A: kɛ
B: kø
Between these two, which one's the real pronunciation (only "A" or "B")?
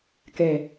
A